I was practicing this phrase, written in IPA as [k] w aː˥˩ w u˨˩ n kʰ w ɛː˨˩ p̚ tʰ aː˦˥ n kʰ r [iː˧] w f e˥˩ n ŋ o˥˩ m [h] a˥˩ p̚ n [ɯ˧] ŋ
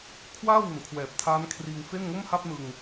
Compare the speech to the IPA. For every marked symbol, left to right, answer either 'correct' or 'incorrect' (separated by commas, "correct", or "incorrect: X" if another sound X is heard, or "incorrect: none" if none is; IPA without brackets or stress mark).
incorrect: kʰ, correct, correct, correct